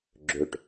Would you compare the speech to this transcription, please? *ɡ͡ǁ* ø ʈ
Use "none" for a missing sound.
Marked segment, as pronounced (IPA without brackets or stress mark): ɡ͡ǁ